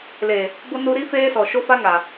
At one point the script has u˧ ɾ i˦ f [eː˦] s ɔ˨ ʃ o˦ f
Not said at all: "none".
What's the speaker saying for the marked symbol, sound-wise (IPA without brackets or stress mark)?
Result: eː˦